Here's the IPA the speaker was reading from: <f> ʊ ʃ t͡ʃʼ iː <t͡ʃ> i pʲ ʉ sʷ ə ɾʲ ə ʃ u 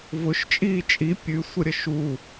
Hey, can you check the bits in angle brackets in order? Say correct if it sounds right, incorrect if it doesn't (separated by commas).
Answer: incorrect, incorrect